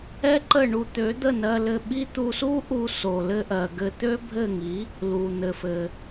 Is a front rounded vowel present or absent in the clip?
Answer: present